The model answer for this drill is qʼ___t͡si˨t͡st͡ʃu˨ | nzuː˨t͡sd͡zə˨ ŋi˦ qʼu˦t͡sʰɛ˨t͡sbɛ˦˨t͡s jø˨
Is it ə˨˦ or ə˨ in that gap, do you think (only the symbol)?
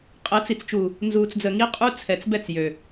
ə˨˦